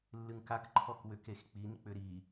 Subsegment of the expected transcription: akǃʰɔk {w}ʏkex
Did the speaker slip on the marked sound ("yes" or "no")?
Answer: no